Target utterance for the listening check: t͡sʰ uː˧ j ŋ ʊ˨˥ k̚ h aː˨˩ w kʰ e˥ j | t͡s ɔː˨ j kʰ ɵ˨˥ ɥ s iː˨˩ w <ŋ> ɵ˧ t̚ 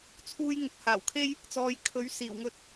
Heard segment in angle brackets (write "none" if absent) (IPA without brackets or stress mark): ŋ